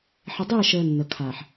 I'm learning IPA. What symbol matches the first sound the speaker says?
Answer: ħ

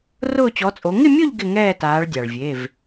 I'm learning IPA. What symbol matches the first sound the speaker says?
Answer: r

